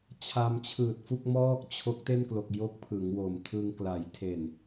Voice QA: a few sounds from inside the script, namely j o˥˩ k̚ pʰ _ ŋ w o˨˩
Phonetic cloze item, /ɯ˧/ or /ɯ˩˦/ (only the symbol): ɯ˩˦